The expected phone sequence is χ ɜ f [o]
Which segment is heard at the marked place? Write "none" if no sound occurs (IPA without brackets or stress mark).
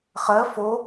o